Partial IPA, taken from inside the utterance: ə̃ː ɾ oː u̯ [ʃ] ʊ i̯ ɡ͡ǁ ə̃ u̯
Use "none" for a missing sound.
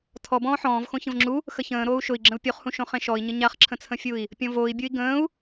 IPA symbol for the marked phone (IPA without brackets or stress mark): ʃ